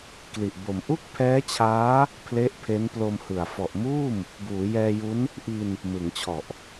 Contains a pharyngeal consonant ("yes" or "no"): no